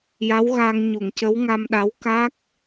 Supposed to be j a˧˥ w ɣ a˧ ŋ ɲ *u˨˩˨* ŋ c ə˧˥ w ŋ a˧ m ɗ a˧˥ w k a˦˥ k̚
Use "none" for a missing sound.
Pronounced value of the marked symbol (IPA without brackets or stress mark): u˨˩˨